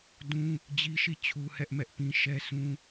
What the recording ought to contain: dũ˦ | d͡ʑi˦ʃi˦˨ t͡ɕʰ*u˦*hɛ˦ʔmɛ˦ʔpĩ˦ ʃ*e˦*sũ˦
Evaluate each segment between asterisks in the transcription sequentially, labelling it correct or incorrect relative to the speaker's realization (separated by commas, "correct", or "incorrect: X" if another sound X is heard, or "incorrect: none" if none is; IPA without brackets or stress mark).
correct, incorrect: ɛ˦